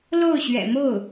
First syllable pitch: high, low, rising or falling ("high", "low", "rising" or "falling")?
falling